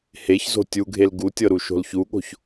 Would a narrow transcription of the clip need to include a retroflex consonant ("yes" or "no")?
no